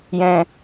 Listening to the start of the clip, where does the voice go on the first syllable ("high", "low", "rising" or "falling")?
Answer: low